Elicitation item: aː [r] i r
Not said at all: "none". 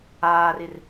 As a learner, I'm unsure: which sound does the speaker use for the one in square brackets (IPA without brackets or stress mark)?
r